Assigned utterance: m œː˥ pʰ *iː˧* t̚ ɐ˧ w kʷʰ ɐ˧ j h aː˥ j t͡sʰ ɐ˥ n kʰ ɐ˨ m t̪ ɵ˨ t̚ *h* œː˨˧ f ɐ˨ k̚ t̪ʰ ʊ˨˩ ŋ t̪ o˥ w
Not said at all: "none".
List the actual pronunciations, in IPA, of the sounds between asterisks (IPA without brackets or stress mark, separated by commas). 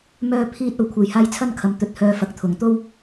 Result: iː˥, h